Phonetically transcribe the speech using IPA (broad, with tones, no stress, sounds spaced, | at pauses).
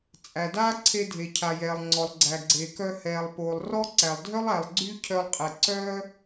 t͡sʼ æ˩ d aː˥ ǀʰ e˧ dʱ e˩ cʰ a˩ j ɛː˩ lˠ ŋ͡ǀ ɔ˩ lˠ ɡ͡ǀ æ˩ ɡ͡ǀ e˩ k œ˧ h ɛː˩ lˠ p oː˩ lˠ r ɔ˥ ǀ æ˩ lˠ dʱ œ˥ lˠ æ˩ lˠ ɡ͡ǀ y˥ cʰ œ˧ lˠ qʼ ɛ˩ ǀ œː˥